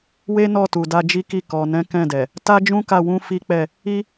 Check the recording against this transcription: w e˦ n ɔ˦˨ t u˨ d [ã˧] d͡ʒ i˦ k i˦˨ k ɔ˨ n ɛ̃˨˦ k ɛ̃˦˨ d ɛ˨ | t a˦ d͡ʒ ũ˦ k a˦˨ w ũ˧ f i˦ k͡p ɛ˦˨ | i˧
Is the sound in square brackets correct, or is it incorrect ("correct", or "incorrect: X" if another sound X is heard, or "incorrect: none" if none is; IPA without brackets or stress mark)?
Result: incorrect: a˧